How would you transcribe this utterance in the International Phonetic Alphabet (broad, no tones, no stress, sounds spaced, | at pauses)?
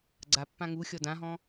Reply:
ɡ͡ǀ a pː ã ŋ u xʲ ɔ d ã ɦ ɔ̃